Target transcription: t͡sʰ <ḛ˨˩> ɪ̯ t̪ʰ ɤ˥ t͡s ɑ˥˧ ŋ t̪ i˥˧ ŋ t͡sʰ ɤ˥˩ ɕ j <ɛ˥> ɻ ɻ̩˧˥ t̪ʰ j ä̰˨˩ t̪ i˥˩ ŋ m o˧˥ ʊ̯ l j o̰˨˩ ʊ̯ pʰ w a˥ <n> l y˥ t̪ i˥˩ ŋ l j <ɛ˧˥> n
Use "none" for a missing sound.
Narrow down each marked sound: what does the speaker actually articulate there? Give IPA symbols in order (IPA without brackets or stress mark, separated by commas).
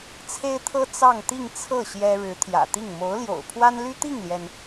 e˥, ɛ˥, n, ɛ˩